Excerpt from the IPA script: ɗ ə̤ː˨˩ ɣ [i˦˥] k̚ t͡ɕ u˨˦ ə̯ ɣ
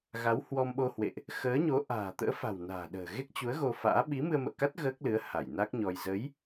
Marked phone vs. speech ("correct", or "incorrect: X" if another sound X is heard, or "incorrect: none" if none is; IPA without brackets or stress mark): incorrect: e˦˥